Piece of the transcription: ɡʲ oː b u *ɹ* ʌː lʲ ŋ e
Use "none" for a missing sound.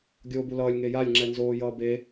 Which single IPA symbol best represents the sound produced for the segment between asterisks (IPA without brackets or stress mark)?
l